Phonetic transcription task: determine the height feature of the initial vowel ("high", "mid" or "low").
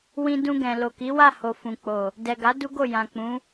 high